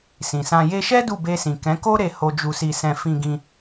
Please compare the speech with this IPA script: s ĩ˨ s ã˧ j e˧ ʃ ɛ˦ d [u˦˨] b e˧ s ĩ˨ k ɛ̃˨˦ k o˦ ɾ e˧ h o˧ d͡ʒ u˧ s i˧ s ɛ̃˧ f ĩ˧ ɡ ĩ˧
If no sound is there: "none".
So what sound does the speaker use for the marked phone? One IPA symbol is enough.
u˦˨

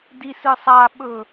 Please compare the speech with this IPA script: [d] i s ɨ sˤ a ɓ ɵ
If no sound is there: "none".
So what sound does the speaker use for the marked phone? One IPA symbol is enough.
d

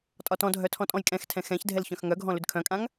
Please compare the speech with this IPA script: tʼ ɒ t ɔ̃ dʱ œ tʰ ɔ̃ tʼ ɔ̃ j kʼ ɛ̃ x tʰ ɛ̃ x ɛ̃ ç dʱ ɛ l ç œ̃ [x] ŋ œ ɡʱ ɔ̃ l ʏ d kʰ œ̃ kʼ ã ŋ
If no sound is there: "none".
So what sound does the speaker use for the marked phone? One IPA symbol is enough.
x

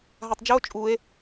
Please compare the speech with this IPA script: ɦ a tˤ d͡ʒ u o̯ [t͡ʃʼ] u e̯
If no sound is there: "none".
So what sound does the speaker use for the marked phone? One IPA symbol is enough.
t͡ʃʼ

